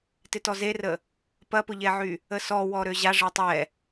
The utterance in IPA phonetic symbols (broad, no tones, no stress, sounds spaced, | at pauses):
t ɪ t ɔ z e r ə | p ɐ p ʊ ʎ ɛ ʕ y | ə s ɔ w ɔ ɾ ø ʑ a ʐ ɛ tˤ ɛ